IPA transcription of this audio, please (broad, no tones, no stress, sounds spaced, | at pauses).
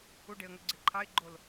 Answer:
u ɖ e ə̯ ŋ ɵ ɡ͡ǀ e ǃʰ ɑ ɪ̯ ɡ͡ǃ o l